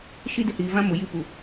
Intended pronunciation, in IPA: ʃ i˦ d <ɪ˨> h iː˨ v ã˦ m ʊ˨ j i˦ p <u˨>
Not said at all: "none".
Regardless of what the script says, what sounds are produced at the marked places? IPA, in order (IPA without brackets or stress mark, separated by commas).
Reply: ɪ˨, u˨